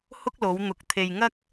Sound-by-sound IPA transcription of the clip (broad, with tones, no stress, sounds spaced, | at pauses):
h ʊ˥ k̚ l o˨˧ w n̪ ʊ˨ k̚ t̪ʰ e˨ j ŋ ɐ˥ k̚